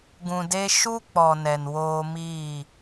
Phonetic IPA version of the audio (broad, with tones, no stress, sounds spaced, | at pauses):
ɡ ũ˨ d e˧ ʃ u˦ k͡p ɔ˨ n ɛ˨ n w oː˧ m iː˦˨